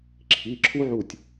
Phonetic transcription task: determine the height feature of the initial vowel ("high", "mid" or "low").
high